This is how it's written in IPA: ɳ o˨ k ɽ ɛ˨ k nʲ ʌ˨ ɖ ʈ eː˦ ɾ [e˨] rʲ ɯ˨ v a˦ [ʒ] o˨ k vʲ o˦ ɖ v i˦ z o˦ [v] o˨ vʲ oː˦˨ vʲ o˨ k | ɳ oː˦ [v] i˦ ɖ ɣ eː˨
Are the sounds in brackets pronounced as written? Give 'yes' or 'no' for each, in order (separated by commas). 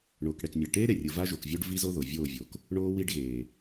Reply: yes, yes, no, no